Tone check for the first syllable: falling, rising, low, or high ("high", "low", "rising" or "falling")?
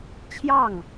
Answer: falling